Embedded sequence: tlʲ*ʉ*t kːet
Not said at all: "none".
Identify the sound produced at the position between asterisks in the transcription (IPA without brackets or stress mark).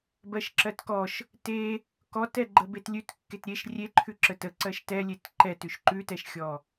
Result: ʉ